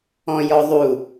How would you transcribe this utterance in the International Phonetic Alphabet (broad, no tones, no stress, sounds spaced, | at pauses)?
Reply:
ɔ̃ j ɔ ðˤ u